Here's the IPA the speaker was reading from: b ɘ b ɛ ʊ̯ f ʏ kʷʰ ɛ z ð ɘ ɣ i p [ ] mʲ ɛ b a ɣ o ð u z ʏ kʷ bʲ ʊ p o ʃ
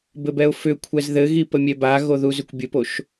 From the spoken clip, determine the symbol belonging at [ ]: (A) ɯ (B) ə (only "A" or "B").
B